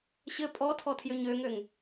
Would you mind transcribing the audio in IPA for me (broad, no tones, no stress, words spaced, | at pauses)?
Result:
ɕɘ pʼɔtʰɔ tʰjøɲøŋøŋ